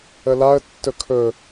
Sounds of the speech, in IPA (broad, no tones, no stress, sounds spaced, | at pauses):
ə l a ə̯ tː ɵ kʰ ɵ